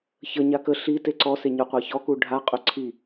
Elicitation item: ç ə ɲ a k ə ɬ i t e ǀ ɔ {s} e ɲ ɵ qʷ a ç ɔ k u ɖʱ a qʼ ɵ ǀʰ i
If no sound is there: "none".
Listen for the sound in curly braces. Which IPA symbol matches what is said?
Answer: s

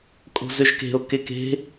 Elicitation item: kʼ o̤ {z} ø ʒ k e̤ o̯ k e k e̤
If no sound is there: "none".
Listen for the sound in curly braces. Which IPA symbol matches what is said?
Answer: z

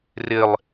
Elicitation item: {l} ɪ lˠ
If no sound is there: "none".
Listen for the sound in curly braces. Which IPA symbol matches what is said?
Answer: r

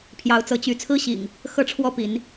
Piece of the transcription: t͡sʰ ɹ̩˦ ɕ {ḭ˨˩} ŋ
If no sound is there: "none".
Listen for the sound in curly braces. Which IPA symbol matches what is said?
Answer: ḭ˨˩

